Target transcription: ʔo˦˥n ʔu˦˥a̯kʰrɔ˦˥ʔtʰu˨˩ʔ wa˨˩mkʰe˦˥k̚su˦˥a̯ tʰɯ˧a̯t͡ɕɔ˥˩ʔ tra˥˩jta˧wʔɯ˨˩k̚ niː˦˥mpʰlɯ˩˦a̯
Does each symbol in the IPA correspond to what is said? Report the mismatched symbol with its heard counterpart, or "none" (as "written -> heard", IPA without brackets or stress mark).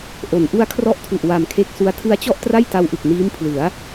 o˦˥ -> o˩˦